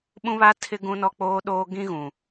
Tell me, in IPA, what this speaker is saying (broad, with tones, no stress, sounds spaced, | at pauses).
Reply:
ɓ ũ˦ β aː˦ tʰ ɪ˦ ɡ ũ˦ n ɔ˦ k͡p oː˦ ɗ oː˦ ɡ ĩ˦ ɣ ũ˨